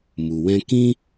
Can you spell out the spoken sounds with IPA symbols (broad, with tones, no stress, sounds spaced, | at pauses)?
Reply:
m u˨ w ɛ̃˧ k ĩ˦